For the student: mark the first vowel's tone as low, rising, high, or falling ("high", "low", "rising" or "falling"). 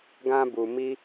high